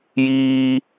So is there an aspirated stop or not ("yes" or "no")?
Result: no